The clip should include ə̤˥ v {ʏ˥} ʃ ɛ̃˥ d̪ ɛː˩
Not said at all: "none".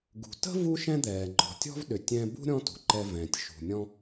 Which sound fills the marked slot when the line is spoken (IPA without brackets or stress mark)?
u˥